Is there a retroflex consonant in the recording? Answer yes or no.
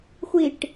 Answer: yes